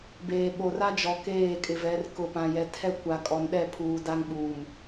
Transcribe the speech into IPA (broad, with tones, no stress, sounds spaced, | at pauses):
b eː˨ ɓ o˨ r a˦ d͡ʒ ɔ˨ k eː˦˨ kʼ ɪ˨ v ɛ˨˦ r k ʊ˨ p ã˨ j ɛ˨ tʰ ɛ˦ kʷ a˨ kʼ ɔ˨ n ɗ ɛ˦˨ pʰ uː˨ d a˦ ŋ ɓ uː˨ m